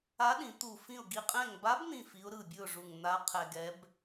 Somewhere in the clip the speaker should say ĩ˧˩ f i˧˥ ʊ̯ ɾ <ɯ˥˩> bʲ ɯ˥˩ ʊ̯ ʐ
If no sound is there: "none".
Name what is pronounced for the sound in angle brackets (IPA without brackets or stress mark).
ɯ˧˩